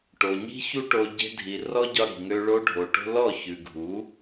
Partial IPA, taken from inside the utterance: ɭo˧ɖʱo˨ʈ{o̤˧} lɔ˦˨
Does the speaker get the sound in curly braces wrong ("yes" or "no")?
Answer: no